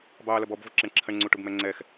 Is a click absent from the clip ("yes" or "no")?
no